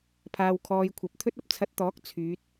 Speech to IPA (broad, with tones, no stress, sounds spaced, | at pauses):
pʰ aː˧ w kʰ ɔː˧ j kʷʰ ɐ˨˥ p̚ t̪ʰ ɵ˥ t̚ ɐ˨ p̚ t͡sʰ ɐ˧ t̚ t̪ ɔː˨˥ k̚ t͡sʰ yː˨˥ t̚